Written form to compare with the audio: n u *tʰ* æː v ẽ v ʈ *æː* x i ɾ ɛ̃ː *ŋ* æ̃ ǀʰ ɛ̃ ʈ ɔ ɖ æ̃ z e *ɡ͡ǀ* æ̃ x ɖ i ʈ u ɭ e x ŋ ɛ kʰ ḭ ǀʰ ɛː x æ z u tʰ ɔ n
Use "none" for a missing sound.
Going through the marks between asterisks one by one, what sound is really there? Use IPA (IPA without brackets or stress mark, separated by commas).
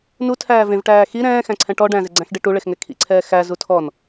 tʰ, æː, x, ɡ͡ǀ